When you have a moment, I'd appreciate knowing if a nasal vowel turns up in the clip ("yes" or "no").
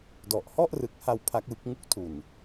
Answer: no